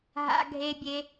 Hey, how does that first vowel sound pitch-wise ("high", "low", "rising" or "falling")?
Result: high